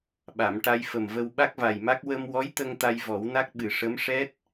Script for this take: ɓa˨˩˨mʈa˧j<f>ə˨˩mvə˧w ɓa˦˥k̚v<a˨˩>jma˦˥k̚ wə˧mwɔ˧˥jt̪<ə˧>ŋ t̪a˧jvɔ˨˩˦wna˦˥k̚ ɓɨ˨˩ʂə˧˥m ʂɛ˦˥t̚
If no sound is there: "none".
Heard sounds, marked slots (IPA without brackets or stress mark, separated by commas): f, a˨˩, ə˧